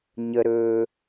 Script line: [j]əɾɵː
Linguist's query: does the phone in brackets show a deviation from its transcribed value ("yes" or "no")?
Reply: yes